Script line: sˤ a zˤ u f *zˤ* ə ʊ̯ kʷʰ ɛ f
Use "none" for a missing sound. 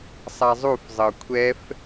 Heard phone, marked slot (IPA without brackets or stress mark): zˤ